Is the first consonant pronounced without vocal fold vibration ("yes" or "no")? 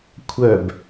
yes